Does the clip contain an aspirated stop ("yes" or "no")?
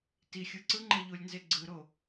no